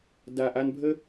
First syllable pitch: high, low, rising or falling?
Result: low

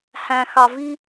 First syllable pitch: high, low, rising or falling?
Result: low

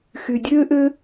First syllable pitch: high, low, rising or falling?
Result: low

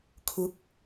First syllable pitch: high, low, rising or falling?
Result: rising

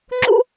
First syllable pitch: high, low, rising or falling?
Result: high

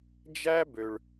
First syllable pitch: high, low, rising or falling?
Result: high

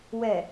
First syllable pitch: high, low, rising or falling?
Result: low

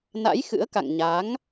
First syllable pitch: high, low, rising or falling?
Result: rising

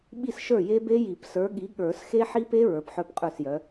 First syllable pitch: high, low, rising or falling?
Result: falling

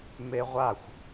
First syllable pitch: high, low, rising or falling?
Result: high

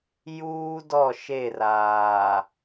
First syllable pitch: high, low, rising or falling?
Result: high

